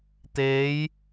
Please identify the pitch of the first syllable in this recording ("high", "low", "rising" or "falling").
rising